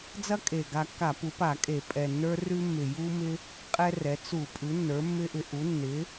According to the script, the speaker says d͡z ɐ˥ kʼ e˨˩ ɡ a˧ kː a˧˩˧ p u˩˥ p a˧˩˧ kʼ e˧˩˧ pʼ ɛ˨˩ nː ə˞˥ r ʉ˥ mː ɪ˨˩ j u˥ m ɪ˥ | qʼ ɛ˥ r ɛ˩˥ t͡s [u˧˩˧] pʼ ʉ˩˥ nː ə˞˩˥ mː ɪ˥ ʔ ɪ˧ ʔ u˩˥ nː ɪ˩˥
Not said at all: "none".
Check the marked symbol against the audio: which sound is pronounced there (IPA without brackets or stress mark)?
u˧˩˧